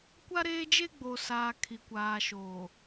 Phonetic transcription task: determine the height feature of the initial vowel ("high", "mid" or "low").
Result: low